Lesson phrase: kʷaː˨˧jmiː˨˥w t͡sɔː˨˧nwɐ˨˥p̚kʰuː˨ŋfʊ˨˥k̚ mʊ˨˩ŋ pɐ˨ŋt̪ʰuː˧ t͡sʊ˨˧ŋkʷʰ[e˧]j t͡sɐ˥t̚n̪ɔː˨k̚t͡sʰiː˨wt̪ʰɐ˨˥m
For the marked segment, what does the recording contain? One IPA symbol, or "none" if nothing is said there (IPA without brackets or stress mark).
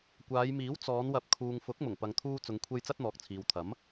e˧